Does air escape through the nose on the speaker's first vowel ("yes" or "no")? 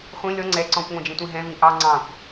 yes